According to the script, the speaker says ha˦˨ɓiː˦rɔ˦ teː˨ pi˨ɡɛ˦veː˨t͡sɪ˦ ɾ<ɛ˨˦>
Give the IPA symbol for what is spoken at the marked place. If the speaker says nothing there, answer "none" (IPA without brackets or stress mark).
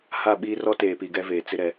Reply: ɛ˨˦